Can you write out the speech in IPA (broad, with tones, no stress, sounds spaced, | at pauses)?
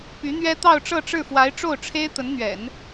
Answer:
p y˧˥ n̪ ɥ ɛ˥ t̪ ɑ˥˧ ʊ̯ ʈ͡ʂ ɤ˥˧ ʈ͡ʂ ɻ̩˥˩ f w a˧˥ ɪ̯ ʈ͡ʂ o˥˩ ʊ̯ ʈ͡ʂʰ e˥ ɪ̯ t̪ ə˧˥ n n̪ ɥ ɛ̰˨˩˦ n